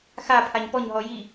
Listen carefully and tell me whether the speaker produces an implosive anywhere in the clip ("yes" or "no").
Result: no